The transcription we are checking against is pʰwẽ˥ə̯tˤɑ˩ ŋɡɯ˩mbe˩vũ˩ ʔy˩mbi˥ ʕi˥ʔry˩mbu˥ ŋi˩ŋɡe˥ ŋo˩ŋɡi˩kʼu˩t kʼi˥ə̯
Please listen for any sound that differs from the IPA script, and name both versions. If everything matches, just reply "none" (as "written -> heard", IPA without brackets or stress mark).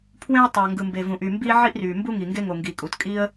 none